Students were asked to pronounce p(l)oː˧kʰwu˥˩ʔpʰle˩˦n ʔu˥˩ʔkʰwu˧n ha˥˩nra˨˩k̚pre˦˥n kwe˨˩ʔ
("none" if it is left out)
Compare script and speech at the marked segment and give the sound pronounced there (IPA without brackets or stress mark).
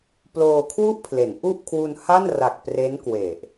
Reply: l